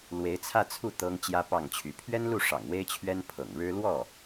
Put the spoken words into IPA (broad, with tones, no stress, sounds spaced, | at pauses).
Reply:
l w e˧˥ ɪ̯ t͡sʰ ä˥˧ t͡sʰ u˥˩ t̪ ɤ˥ ŋ t͡ɕ j ä˥ p ɑ˥˩ ŋ t͡ɕʰ y˧˥ pʰ ɥ ɛ˥ n l u˥˩ ʂ ɑ̰˨˩ ŋ w e˥ ɪ̯ t͡ɕʰ ɥ ɛ˥ n pʰ ɤ̰˨˩ ŋ ɻ ɻ̩˥ l w ɔ˥˩